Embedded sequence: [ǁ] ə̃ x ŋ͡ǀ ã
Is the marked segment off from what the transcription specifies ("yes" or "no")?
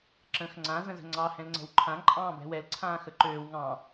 no